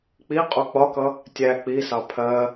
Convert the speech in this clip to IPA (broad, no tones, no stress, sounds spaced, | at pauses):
k͡p i qʼ u k͡p ɒ k ʌ | tʲ æ k͡p i s ɑ pʰ ɜ